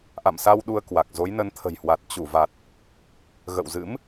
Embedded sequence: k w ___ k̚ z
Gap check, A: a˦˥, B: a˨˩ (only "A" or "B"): B